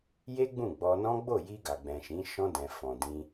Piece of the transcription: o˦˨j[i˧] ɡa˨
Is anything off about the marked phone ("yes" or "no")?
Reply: no